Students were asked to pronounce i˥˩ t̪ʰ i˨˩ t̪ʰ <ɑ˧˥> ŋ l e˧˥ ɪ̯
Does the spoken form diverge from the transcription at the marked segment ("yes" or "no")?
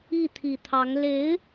no